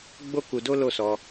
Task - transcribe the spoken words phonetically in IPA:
ɡ͡b o˦ k u˧ d o˦ l o˦˨ s ɔ˧

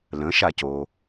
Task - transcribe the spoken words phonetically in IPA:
l ə̃ ʃ a c o

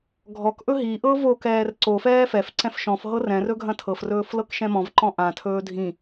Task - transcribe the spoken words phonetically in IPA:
ɡʱ ɔ k ʔ ɵ ɦ i ʔ ɤ v o k ɛː r ǀ o f ɛː f ɛ f ǀ ɛ̃ f ʃ ɔ̃ f ɦ ɤ r ɛ̃ r ɵ ɡʱ ɐ̃ tʰ ɤ f r ɵː f l ɤ k ʃ ɛ̃ m ɔ̃ v ǃ ɔ̃ ʔ ã tʰ ɵː dʱ ĩ

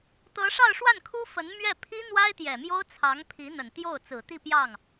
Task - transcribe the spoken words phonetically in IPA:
t̪ ɤ˧˥ ʂ ɑ˥˧ ʊ̯ ʂ w a˥˩ n kʰ u˥ f ə˧˥ n m ɥ ɛ˥˩ pʰ i˥ n̪ w a˥ ɪ̯ t̪ j ɛ˨˩ m j o˥ ʊ̯ t͡sʰ ɑ˧˥ ŋ pʰ i˧˥ n̪ ə˨˩ n t̪ j o˥˩ ʊ̯ t͡s ɹ̩˨˩ t̪ i˥˧ p j ɑ˥˩ ŋ

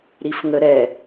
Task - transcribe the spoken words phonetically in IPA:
ɾ i f ŋ ə ɾ ɛ

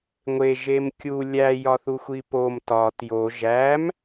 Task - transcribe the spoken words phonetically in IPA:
ŋʷ e ʒ e m kʲ u lʲ æ j ɒ θ u xʷ i p o m t ɒ t j o ʒ æ m

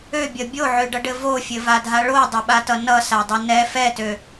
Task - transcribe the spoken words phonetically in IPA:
ø bʲ ʌ bʲ o ʕ ø ɖ ʌ ɖ ɘ v o fʲ ɘ v a dʱ a ɭ o dˤ ɘ ɓ a t ʌ n ʌ s a dˤ ɘ n ɛ f ɛ t ø

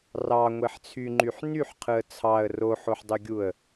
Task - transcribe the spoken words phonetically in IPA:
r ɑ ŋʷ e ħ t͡sʰ y ŋ͡ǃ y ħ n y ħ qʰ ɯ ə̯ t͡sʰ ɑ ə̯ r o ħ o ħ dˤ ø ɡʲ u ə̯

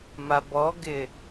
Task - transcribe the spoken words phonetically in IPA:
m a b ɔ ɡ ɪ

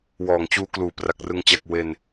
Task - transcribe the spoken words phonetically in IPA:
w ɔː˨˩ ŋ t͡ɕ uː˧ k l uː˩˦ p r a˨˩ k̚ r ɯ˧ ŋ t͡ɕ a˨˩ k̚ w e˨˩ n

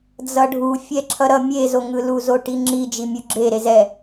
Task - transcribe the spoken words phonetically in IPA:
d͡z ʌ ɖʱ u fʲ ɛ ǁʰ ʌ ɾ ʌ mʲ e z o ŋ ɯ l u z o ʈ i ŋ͡ǁ i d͡ʒ i mʲ u ɡ͡ǁ e ɾ e z ɛ

